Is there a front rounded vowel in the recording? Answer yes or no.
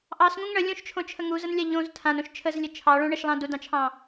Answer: no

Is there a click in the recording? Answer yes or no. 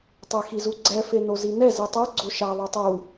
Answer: yes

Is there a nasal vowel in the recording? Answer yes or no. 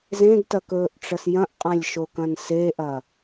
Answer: yes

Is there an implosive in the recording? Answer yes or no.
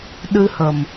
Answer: yes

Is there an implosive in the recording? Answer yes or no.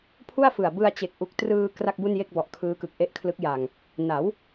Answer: no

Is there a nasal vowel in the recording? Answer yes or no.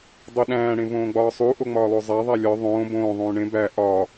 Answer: yes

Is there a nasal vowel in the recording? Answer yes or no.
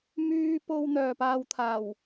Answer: no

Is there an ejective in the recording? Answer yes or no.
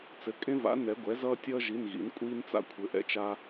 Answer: yes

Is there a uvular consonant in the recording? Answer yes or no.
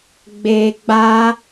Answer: no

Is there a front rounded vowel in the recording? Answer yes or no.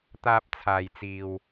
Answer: no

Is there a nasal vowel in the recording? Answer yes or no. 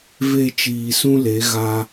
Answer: yes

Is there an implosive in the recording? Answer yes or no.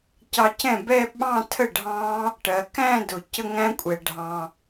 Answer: yes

